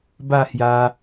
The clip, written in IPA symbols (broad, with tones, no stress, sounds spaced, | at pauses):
b a˥˧ h j a˧